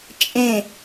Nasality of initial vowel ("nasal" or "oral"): nasal